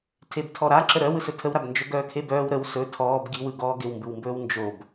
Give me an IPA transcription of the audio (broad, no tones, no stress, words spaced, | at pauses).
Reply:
tʰebtʰɔɾaǁə ɾœw ɯsɵtʰəwɾab nd͡ʒɵɡœːkʰebœːw ɾəw sɵ tʰɔːb ɡiwɯ ɡɔːɡɪwmbɯwmbɵːw nd͡ʒob